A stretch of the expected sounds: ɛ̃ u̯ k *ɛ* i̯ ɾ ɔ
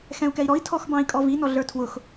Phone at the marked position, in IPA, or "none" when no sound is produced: ɛ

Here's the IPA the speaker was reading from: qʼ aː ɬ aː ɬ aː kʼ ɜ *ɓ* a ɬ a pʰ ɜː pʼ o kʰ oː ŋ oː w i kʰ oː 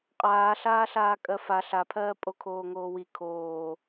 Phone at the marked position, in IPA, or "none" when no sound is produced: f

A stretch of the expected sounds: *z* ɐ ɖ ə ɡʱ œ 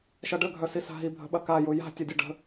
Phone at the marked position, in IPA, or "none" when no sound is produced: ʃ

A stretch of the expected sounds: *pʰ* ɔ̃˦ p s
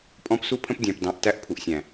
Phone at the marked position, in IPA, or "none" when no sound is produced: pʼ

